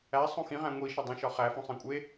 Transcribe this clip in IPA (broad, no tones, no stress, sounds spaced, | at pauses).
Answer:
æ sˤ õ x ĩ ʁ æ̃ ŋʷ i ʃ ɒ dˤ ĩ ʃ ɒ χ æ f õ sˤ ẽ kʷʼ e